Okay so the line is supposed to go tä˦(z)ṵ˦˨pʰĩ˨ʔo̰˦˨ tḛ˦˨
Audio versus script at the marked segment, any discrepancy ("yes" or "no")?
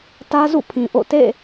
no